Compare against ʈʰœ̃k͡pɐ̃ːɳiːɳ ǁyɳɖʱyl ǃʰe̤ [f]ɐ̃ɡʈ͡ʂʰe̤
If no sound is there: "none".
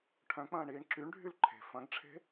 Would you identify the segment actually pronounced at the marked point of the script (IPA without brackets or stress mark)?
f